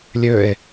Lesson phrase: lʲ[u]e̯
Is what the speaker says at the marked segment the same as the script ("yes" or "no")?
no